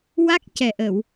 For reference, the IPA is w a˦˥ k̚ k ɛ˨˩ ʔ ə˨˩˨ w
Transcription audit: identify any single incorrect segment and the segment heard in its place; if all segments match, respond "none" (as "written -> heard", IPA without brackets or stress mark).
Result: k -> c